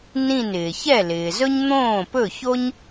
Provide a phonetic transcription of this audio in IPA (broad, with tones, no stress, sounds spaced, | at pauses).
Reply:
n ĩ˥˩ n ɪː˩ ç ɛ˥˩ l ɪː˩ z ɵ˥ ɲ n̪ õː˥˩ p ɵ˥˩ ç o˥ ɲ